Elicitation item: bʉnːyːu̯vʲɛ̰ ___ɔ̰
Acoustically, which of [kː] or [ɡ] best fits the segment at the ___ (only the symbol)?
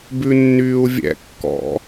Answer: kː